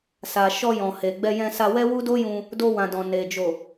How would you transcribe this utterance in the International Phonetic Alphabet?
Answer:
s a˨ ʃ ɔ˧ j ɔ̃˨ h e˨ ɡ͡b ɛ˧ j ɛ̃˧ s a˧ w ɛ˦ w u˦ d o˦ j ũ˧ | d o˧ w ã˨ d ɔ̃˨ n e˨ d͡ʒ o˨

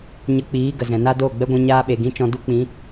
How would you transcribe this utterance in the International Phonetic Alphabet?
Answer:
ɲ ə˧ k͡p iː˨˦ ɡ ə˨ z ɛ̃˨ n a˦ d oː˦˨ ɡ͡b ɛ˦ ɡʷ ɛ̃˧ ɲ aː˦ ɓ e˨ ɡ ĩ˦ t͡ʃ ɔ̃˧ d u˦ k͡p ĩ˨˦

